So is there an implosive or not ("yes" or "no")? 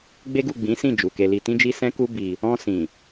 no